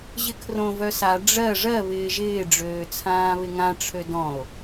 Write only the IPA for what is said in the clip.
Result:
ʑ ɪ kʰ r õ v œ s a ɖ͡ʐ ɜ ʐ ɜ β ɪː ʒ ɪː ɖ͡ʐ øː t͡sʰ ãː β ɪ ŋ ã ʈ͡ʂʰ ø d ɔ̃ o̯

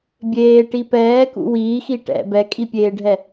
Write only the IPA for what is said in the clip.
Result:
bʲ eː ʈ i p ɛː k ṵ w iː x i ʈ ɛ̰ b ɛ kʼ i pʲ eː ɖʱ ɛ

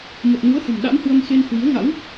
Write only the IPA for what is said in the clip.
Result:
m ə˨˩ t̚ n u˨˦ ə̯ h ə̤˨˩ m ɗ a̰˧˥ m h w ə˧ m x e˧ n h w i˨˦ ə̯ ŋ a̰˧˥ w

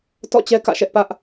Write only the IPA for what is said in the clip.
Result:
t ɔ̰˦˨ t͡ɕ ɛ˦ k ä̰˦˨ ʃ ɛ˦ ʔ p ä˦ ʔ

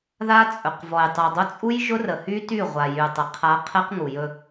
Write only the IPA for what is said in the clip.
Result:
ð a˦ t͡sʼ ɵ˨ q v ɔ˨ j tˤ u˨ dˤ ʊ˦ t͡sʼ u˦ j ʒ ʊ˦ r ə˨ h y˦ t y˦˨ ʁʷ a˨ j y˨ tˤ ə˨ qʰ a˦ qʰ ɛ˦ q ŋ u˨ j ɵ˦

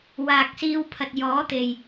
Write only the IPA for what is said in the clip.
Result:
w aː˨ k̚ s iː˧ w pʰ ɐ˨ t̚ j ɔː˨˥ t̪ e˨ j

